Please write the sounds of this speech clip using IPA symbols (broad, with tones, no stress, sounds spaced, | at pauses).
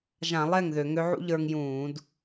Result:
ʒ ã˧˩˧ lˠ ɛ˥˩ ŋ ð ø˧˩˧ ŋ ø˧˥ ʕ ṵ˥ ʎ ə˞˧ ŋ j ũː˧˩˧ d